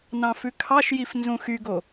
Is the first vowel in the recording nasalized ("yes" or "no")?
yes